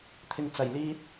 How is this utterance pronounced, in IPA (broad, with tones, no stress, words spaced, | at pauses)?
t̪ʰɪ˨ŋ t͡sɐ˨˩j liː˧t̚